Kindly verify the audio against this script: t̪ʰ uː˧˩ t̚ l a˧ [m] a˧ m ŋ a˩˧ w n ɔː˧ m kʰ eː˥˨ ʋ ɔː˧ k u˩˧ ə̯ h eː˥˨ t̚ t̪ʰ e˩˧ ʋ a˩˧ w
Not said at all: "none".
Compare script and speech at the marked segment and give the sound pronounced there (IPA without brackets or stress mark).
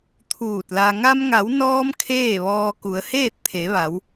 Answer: ŋ